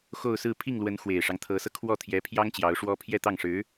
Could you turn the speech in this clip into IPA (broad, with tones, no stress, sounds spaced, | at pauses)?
x o˥˧ ʊ̯ s ɹ̩˥˧ pʰ i˥˩ ŋ l w ə˧˥ n x w e˨˩ ɪ̯ ʂ ɑ˦ ŋ t̪ʰ ɤ˧˥ s ɤ˧ kʰ w ɔ˥˩ t̪ʰ j ɛ˧˥ pʰ j ɑ˥ ŋ t͡ɕ j ɑ˧˥ ʊ̯ ʂ w ɔ˥ pʰ j ɛ˥˧ t̪ ɑ˥˩ ŋ ʂ ɻ̩˧˥